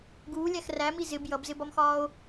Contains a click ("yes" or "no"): no